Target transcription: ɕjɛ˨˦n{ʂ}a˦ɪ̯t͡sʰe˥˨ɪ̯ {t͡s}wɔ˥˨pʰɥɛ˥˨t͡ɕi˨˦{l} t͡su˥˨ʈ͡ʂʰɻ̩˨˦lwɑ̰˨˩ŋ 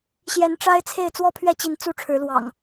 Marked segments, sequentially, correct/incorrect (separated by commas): incorrect, correct, incorrect